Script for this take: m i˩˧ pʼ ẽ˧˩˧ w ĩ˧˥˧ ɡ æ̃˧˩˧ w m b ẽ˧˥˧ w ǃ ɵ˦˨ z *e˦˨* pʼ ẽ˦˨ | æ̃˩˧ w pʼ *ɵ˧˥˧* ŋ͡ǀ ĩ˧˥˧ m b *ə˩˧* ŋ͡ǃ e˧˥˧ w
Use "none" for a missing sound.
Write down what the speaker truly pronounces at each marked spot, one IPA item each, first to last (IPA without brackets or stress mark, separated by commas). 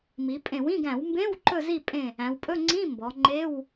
i˦˨, ɵ˧˥˧, ɔ˩˧